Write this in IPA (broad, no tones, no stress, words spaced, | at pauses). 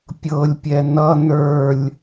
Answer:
pʲɤlʲpʲɛ nʌ nə˞lʲ